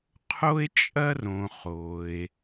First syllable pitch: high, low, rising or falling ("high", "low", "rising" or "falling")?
high